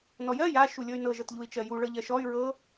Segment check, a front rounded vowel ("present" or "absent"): present